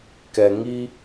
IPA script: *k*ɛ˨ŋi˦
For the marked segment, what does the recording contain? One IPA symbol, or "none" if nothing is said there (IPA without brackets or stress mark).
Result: k